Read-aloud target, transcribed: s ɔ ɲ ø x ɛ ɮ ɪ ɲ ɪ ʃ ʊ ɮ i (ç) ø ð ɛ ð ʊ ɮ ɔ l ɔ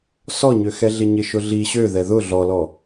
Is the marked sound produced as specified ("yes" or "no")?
no